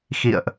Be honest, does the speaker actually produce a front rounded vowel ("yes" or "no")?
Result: no